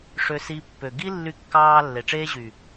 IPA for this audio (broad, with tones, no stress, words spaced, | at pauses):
ʂø˧si˧pːø˨ ɡi˦ lːy˧kːɑː˧ lːe˨ʈ͡ʂeː˦ʑy˨